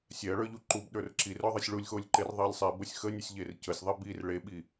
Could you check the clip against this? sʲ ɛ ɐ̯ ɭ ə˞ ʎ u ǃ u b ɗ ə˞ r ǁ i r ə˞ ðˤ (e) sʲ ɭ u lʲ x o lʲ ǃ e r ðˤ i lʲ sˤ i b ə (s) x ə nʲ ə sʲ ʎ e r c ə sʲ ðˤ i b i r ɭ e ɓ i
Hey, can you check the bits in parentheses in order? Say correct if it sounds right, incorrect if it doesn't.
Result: incorrect: i, incorrect: sʲ

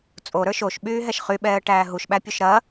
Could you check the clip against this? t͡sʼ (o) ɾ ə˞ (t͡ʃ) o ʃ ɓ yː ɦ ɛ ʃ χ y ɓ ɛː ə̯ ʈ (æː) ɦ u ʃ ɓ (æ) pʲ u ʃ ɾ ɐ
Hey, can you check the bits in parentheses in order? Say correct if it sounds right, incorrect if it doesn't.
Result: correct, incorrect: ʃ, correct, correct

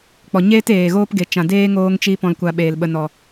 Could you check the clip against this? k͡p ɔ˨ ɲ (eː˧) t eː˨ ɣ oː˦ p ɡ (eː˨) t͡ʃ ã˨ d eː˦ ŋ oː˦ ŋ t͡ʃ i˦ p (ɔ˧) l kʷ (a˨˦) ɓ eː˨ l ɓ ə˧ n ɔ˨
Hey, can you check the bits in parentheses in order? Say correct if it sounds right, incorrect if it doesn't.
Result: incorrect: eː˦, incorrect: e˨, incorrect: ɔ̃˧, incorrect: a˧

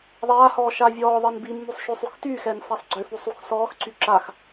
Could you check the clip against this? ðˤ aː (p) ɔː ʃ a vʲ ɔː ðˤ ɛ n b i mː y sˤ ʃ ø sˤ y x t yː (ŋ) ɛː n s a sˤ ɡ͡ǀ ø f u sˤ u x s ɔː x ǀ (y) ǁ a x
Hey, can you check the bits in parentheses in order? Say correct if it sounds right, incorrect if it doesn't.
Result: incorrect: h, incorrect: x, correct

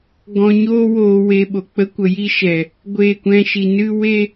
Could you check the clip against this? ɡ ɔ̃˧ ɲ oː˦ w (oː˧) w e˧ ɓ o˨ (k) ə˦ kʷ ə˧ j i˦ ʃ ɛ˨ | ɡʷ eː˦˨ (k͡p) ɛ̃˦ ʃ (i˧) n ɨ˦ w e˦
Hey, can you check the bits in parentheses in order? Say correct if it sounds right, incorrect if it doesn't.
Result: correct, incorrect: k͡p, incorrect: kʷ, correct

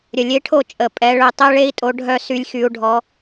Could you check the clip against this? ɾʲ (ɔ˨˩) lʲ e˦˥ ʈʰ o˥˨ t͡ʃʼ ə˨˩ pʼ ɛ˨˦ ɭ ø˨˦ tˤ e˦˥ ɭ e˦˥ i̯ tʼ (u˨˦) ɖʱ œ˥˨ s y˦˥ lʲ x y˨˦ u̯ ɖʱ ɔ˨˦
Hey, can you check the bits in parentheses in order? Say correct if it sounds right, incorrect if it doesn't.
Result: incorrect: ə˨˩, incorrect: o˨˦

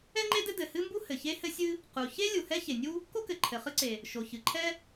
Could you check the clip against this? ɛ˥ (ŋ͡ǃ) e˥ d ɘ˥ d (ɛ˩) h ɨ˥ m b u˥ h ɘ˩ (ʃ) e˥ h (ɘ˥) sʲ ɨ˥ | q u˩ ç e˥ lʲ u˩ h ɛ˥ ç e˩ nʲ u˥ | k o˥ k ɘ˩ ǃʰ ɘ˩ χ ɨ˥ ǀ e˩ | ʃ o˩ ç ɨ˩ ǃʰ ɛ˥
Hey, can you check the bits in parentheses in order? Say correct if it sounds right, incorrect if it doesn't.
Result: correct, incorrect: ɘ˩, incorrect: ç, correct

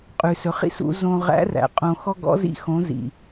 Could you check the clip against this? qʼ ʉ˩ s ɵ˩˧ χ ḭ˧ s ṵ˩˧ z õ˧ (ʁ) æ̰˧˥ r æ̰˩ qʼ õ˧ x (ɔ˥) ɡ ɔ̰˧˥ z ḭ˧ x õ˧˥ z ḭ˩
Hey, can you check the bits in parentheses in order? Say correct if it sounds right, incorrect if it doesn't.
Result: correct, correct

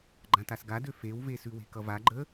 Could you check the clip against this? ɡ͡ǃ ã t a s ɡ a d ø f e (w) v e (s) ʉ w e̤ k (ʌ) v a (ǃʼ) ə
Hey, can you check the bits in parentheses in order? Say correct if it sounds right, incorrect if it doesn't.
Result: correct, correct, correct, incorrect: ɡ͡ǃ

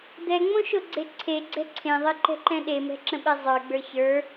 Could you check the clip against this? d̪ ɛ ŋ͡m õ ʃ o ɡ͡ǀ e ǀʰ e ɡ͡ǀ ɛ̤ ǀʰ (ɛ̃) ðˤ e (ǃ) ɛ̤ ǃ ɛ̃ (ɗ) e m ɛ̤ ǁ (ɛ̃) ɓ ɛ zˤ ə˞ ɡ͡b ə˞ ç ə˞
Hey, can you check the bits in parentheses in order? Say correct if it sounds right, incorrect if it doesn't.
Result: incorrect: ẽ, correct, correct, incorrect: ə̃

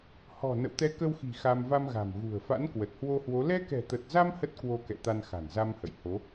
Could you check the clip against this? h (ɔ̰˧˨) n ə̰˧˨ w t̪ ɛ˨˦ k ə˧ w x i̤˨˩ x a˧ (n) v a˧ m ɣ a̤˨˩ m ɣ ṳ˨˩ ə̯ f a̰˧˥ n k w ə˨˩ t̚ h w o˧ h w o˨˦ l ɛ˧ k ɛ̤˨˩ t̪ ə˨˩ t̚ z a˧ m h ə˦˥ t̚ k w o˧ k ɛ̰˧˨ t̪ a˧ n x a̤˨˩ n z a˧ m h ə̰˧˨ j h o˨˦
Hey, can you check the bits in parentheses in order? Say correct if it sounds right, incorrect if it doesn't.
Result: incorrect: ɔ̤˨˩, incorrect: m

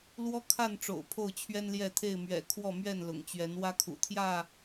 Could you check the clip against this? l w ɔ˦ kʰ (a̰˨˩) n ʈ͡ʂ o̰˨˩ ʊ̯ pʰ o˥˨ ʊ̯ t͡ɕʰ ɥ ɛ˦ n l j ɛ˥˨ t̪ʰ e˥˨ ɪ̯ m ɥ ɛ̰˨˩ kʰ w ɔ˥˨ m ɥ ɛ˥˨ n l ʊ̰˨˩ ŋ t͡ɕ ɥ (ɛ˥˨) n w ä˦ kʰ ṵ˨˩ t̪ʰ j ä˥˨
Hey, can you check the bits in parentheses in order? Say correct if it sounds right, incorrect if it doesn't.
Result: incorrect: a˥˨, incorrect: ɛ˨˦

